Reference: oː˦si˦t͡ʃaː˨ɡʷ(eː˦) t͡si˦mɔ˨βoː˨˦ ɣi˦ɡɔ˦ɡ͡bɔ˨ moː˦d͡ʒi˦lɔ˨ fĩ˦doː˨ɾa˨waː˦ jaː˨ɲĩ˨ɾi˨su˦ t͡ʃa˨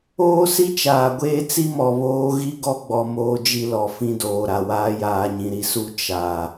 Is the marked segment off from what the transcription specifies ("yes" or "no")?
no